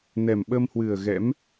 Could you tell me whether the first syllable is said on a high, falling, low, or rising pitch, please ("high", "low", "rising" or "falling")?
low